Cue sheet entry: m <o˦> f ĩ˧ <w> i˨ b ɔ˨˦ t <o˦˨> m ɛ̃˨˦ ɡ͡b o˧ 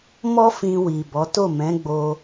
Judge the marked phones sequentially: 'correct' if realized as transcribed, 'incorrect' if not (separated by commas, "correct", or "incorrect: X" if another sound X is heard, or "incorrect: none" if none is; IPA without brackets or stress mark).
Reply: incorrect: ɔ˦, correct, correct